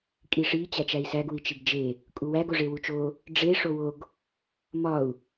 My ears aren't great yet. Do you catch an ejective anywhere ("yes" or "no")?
yes